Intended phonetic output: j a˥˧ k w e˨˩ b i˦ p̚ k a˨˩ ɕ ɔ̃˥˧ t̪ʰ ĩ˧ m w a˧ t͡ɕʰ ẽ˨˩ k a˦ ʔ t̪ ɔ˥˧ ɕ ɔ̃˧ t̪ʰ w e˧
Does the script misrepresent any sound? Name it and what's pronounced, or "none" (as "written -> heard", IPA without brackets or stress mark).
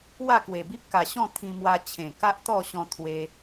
j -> w